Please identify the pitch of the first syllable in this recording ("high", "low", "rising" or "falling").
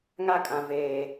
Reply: high